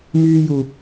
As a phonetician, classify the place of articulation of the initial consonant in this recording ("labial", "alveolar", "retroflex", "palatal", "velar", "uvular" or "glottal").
labial